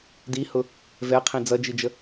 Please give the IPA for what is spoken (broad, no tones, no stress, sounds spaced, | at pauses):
d i h ʊ | v ɛ qʰ ĩ d͡z ʌ d͡ʒ i d͡ʒ ə